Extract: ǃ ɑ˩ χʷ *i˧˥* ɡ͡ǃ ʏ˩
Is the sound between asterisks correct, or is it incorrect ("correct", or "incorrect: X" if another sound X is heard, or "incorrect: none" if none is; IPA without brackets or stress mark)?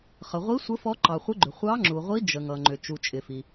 incorrect: ɪ˧˥